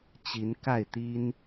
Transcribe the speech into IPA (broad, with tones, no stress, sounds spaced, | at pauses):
t͡ɕ i˧˥ n k a˥˩ ɪ̯ t̪ i˥ n